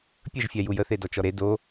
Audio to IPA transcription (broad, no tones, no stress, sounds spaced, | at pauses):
pʲ ə ʒ fʲ a j u j ə θ e d ɔ t͡ʃ ɔ ɾ e d o